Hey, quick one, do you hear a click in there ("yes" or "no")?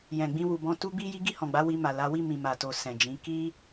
no